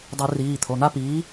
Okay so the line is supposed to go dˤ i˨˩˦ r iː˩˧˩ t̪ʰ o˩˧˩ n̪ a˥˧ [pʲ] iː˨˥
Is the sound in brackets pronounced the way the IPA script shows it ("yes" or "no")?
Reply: no